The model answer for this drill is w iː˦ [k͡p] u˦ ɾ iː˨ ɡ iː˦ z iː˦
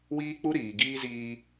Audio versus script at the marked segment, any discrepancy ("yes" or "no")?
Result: no